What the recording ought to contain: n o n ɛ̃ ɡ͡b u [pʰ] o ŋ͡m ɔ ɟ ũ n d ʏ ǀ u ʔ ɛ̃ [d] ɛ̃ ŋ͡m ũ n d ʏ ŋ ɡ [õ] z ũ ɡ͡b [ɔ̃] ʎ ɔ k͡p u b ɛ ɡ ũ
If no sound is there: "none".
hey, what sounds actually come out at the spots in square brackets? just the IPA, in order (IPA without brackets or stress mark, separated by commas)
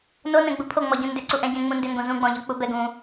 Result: pʰ, ɟ, õ, ɔ̃